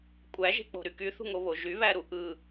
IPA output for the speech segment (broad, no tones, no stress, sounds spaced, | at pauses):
kʷʼ æ ʒ e̤ k͡p o̤ ɾ y k y θ ṳ ŋ o β o ʒ y β æ ɾ u ʔ ɯ